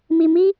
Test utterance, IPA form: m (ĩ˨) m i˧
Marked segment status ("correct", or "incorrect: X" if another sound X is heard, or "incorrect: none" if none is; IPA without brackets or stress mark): incorrect: i˨